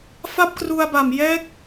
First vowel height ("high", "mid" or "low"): low